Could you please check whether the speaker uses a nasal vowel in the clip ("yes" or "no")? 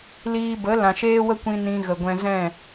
yes